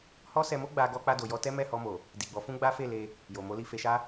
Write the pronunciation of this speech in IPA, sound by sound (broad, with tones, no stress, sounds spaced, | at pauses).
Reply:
h ɔ˦ s ɛ˧ m o˦ ɡ͡b a˧ ɡ ɔ˧ k͡p a˧ d o˨ j ɔ˧ t ɛ˦ m ɛ˦˨ h ɔ˧ m o˨ | d i˨ ɡ͡b ɔ˨˦ f ũ˦ ɡ͡b a˦ f e˦˨ l e˧ | j o˨ m o˨˦ l i˧ f e˧ ʃ a˦